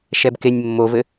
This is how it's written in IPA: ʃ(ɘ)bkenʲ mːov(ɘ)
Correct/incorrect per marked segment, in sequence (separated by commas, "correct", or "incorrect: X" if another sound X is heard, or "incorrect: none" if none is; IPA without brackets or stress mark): incorrect: ɛ, correct